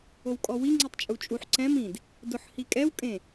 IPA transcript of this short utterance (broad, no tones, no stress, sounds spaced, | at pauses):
o w kʼ ɔ w i ŋ͡ǀ i tˤ t͡ʃʼ u t͡ʃʼ u ħ ǀ ɛ̃ m ĩ d | d ʊ ħ h i kʼ ɛ w kʼ ẽ